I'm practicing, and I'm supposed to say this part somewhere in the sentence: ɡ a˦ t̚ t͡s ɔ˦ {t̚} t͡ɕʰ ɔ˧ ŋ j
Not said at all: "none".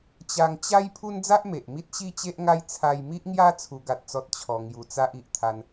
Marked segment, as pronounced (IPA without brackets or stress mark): t̚